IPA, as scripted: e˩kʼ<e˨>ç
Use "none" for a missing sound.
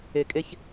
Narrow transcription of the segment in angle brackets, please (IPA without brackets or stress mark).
e˨